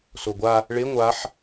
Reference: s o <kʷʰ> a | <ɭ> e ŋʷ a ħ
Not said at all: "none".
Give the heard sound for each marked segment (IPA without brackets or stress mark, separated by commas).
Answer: ɡʷ, ɭ